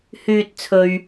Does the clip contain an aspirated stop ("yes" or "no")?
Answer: yes